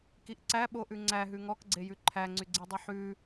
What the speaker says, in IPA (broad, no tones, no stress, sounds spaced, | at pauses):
k i ʔ ǀ æ ɓ o ʔ ʉ ŋ͡ǀ æ ɦ ʉ ŋ ɔ k ɡ͡ǀ e j ʉ ǃʰ æ ŋ͡ǀ y ɡ͡ǀ i dˤ i ħ ʉ